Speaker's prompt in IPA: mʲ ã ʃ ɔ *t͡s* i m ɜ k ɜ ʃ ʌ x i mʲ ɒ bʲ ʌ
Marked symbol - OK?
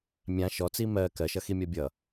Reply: yes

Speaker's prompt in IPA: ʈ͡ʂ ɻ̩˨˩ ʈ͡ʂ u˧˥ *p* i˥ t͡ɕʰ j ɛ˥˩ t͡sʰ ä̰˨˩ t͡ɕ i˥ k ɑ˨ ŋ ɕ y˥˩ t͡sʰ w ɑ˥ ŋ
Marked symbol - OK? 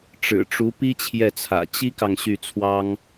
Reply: yes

